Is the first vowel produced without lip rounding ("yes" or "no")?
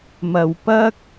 yes